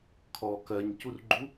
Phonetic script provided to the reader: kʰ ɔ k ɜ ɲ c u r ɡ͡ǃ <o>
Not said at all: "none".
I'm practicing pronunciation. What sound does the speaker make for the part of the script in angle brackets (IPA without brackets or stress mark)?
u